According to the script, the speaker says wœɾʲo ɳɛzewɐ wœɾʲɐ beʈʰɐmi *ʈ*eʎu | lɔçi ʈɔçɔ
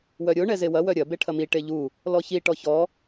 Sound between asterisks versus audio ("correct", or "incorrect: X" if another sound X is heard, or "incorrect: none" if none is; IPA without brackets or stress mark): correct